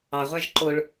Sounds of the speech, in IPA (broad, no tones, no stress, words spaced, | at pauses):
ɑʁʷɑʒ ǃoɭ